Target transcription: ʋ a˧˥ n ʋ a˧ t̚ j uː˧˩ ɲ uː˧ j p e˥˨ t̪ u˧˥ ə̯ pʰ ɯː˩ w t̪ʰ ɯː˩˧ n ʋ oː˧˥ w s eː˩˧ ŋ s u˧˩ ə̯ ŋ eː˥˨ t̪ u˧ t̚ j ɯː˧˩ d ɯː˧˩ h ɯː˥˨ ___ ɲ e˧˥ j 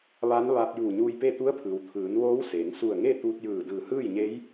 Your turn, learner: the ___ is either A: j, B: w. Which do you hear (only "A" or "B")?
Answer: A